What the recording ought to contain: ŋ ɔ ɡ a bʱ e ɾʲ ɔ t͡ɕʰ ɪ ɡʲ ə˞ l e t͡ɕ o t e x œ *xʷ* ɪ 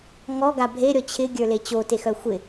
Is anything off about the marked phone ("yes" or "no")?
no